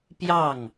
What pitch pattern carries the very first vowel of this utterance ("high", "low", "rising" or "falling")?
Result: falling